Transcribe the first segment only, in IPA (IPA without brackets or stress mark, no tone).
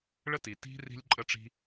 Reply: ɭ